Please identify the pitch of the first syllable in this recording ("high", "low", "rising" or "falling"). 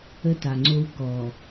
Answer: high